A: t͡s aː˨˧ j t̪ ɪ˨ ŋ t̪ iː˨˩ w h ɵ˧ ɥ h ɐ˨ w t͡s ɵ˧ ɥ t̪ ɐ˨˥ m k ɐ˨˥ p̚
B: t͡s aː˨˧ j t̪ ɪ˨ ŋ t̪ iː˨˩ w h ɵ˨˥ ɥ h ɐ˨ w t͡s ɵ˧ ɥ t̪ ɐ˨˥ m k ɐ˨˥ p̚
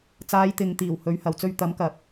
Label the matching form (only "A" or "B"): B